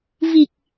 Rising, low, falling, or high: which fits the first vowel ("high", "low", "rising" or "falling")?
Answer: low